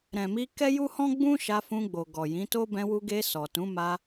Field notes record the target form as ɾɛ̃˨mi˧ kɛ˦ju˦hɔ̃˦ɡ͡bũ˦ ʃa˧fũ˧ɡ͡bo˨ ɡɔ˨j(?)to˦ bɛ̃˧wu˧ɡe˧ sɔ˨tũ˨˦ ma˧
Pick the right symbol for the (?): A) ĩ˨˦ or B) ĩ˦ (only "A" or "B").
A